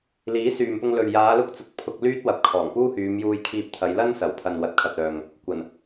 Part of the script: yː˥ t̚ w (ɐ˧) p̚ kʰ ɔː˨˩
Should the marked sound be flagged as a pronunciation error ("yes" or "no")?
yes